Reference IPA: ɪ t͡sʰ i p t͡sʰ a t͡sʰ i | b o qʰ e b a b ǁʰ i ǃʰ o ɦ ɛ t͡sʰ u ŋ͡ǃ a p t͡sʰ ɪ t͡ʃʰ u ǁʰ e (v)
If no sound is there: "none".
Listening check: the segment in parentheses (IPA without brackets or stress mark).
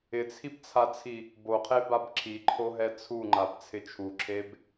b